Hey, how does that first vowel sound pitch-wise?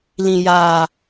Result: low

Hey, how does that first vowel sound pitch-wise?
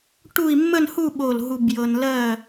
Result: falling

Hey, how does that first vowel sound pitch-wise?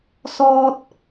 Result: high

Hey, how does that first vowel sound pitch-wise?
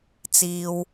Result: low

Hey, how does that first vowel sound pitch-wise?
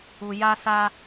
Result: low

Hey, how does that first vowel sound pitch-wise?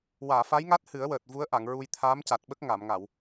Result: low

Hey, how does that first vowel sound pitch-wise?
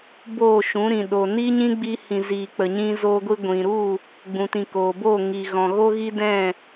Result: falling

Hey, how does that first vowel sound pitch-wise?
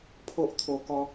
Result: high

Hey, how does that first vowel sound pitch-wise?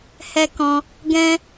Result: high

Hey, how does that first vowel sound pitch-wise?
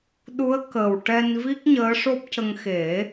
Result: rising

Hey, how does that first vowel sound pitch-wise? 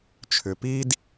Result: low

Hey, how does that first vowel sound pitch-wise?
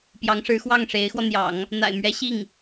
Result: rising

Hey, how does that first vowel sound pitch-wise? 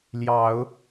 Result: low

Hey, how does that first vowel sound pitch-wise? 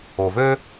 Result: low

